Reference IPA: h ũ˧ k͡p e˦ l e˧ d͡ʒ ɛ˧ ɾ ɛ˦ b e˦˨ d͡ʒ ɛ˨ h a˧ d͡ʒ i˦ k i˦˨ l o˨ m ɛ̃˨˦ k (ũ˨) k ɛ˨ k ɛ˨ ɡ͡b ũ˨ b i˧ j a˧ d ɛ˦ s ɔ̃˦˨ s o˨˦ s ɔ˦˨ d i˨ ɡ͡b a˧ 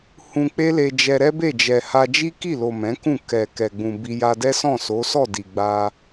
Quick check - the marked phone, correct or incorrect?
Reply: incorrect